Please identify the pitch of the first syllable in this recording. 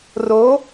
rising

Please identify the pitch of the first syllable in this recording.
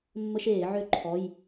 high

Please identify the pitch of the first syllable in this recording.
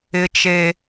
high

